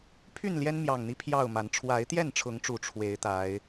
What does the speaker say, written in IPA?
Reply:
pʰ y˥˨ n l j ɛ˦ n m j ɑ˨˩ ŋ n̪ i˨˦ pʰ j ɑ˥˨ ʊ̯ m a˨˦ n ʈ͡ʂʰ w a˨˦ ɪ̯ t̪ j ɛ˥˨ n ʈ͡ʂʰ ʊ˨˦ ŋ ʈ͡ʂ u˨˩ ʈ͡ʂʰ w e˨˦ ɪ̯ t̪ a˨˦ ɪ̯

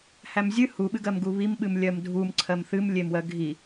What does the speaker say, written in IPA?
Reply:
h æ m zʲ ɨ h u ɓ ɨ ɡ ɜ m ɡ u β i m ɓ ɨ m lʲ ɜ m dʱ u m ǀʰ ɜ m θ ɨ m lʲ e m w ɜ ɡʱ i

